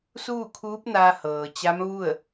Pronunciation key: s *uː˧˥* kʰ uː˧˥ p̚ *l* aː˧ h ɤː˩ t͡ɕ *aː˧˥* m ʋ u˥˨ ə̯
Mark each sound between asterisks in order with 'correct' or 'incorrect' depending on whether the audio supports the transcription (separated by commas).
incorrect, incorrect, incorrect